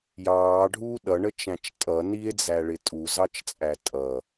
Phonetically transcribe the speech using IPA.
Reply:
j ɑː ɖʱ uː ɗ ʌ ɳ ə t͡ʃ æ̃ t͡ʃ tʼ ʌ n i e̯ d͡z æ ɭ ɪ tʼ u z ɑ t͡ʃ t͡sʼ æ tʼ ʌ

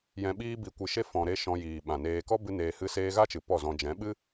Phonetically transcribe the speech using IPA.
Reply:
j ɛ̃˧ ɓ iː˦ b i˧ kʷ ɨ˧ ʃ e˦ f ɔ̃˧ ɾ e˦ ʃ ɔ̃˧ j iː˨ ɓ ã˨ n eː˧ k ɔ˦ b ɨ˦ n eː˧ h ɨ˦ s eː˦ ɣ a˦ t͡ʃ ɨ˨ p ɔ˦˨ z ɔ̃˧ d͡ʒ ɛ̃˨˦ ɓ ɨ˦

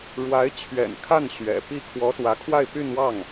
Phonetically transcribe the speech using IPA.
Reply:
ɻ w a˧˥ ɪ̯ t͡ɕʰ ɥ ɛ̰˨˩ n kʰ a˥˩ n ɕ ɥ ɛ̰˨˩ p i˥˩ kʰ w ɔ˧˥ s w ä˧˥ kʰ w a˥˧ ɪ̯ p y˥˧ n w ɑ˥˩ ŋ

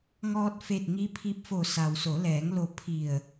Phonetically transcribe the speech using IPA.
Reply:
ŋ ɔː˧ t̚ f e˧˩ t̚ ŋ i˧˥ pʰ i˧˥ p̚ f o˧˩ s a˩ w s o˩˧ l ɛː˩˧ ŋ l o˧˩ pʰ i˧˩ ə̯

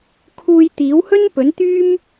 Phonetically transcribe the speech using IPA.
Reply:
kʰ uː˧ j t̪ iː˨˥ w h ɵ˥ n p ɵ˨˥ n t̪ yː˥ m

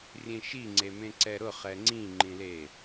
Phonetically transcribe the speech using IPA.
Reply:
rʲ ẽ ʃ i ŋ͡ǀ e m ẽ ǀ ɛ ɾ ʊ χ ɛ ŋ͡ǀ ĩ ŋ͡ǃ ĩ l e

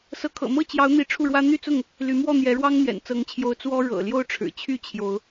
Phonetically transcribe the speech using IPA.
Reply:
s ɤ˨˦ kʰ ɤ̰˨˩ m ɤ˥˨ t͡ɕ j ɑ˨˦ ʊ̯ n̪ i˨˦ ʈ͡ʂʰ u˥˨ ɻ w ä˦ n̪ y˥˨ t͡s ʊ˥˨ ŋ | l y˨˦ m w ɔ˥˨ n̪ j ɛ˨˦ ɻ w ɑ˦ ŋ n̪ j ɛ̰˨˩ n t͡s ɤ˨˦ ŋ t͡ɕʰ j o˨˦ ʊ̯ t͡s w ɔ˦ ɻ ɤ̰˨˩ l j o˥˨ ʊ̯ ʈ͡ʂʰ ɻ̩˨˩ t͡ɕʰ y˥˨ t͡ɕʰ j o˨˦ ʊ̯

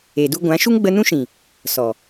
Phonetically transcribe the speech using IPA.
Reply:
eː˨ d u˧ ɡʷ ã˨˦ ʃ u˦ ŋ ɡ͡b ə˧ n ũ˦ ʃ ĩ˨ | s ɔ˨

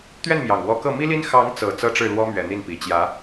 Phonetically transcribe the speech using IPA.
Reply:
t̪ ɥ ɛ˥˩ n m j ɑ˨˩ ŋ w ɔ˧˥ k ɤ˥˩ m i˥ l i˥ n x ɑ˧˥ ŋ t͡s ɤ˨˩ t͡s ɤ˥˧ ʈ͡ʂ ɻ̩˥˩ l w ɔ˥ m ɥ ɛ˨˩ n̪ i˥˩ n p i˨˩ t͡ɕ j ä˧˥

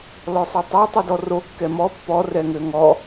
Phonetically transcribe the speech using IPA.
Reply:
l ɔ sˤ o tˤ a tˤ ɛ d ɔ r o kː ɛ m ɔ pː ɔ r ɛ ŋ ø ŋ ɔ

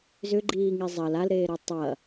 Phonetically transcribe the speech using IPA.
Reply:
z ʏ ɡ͡ǃ iː ŋ i zˤ ɐ l a l ɾ eː ɾ e tˤ ɐ

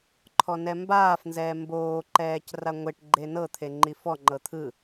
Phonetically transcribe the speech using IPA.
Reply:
ǃʰ ɔ n ɛ m b aː f n z ɛː m b oː ǃ ɛː c r a ŋʷ e ʈ ɡ͡ǃ e n ɤ t̪ʰ e ŋ͡ǃ i f ɔ ŋ͡ǃ ɤ t̪ʰ ɯ

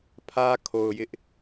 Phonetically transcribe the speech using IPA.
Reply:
pʰ ä˦ kʰ o˨ ʊ̯ j ɪ˦ ʔ

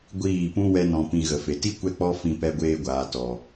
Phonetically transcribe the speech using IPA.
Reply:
ɡʷ iː˦˨ p ũ˦ w ɛ˦ n ɔ̃˧ p ĩ˧ ɣ ə˨ f e˨ t i˦ kʷ ɛ˦ k͡p ɔ˦ f ĩ˧ p ɛ˧ ɡʷ eː˧ ɡʷ aː˨ t ɔ˨

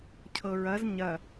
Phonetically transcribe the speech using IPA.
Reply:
cʰ ɤ ɹ ɐ z ɲ ɐ

